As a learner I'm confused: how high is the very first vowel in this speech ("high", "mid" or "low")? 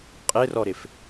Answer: high